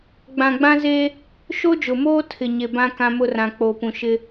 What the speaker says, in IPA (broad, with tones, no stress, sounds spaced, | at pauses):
ɡ͡b ã˨ ɡ͡b ã˦ z e˦ | ʃ o˦ d͡ʒ ʊ˨ m oː˦ tʰ ɪ˨ ɲ e˨ b ã˦ k ã˦ m ʊ˦ r ã˨ k͡p o˨ p ũ˨ ʃ ɪ˦